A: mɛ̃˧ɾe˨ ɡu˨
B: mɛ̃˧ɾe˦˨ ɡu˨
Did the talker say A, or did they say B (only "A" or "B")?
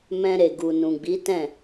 A